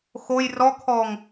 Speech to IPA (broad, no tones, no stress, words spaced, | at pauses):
xoj rɔkʰɔŋ